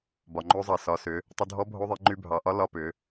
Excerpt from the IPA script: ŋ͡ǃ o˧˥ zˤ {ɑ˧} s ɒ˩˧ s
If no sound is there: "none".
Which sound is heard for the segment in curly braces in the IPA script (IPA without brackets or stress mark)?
ɑ˩